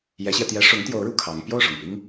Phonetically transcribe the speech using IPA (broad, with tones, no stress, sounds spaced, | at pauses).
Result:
j ɛ˧˥ ɕ j ɛ˧ t̪ j ɛ˧˥ ʂ ʊ˧˥ ŋ t̪ j o˧˥ ʊ̯ ɻ u˨˩ kʰ ɑ˧˥ ŋ p j o˥˩ ʊ̯ ʂ ʊ˨˩ ŋ p i˥ ŋ